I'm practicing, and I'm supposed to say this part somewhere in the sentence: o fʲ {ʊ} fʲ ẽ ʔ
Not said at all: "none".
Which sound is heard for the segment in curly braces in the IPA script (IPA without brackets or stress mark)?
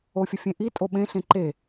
ʊ